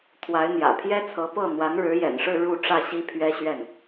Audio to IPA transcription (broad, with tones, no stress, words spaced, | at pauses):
t̪ʰwa˧˥ɪ̯n̪jä̰˨˩ pʰjɛ˥t͡sʰɤ˧˥ pɤ˥˩ n̪wa˧˥nɻɻ̩˧˥jɛ̰˨˩nʂɻ̩˥˧ ɻu˥˧ ʈ͡ʂä˥˩ɕi˥pʰɥɛ˥ɕɥɛ˥˩n